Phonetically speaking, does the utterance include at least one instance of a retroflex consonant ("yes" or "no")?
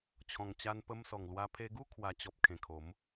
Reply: no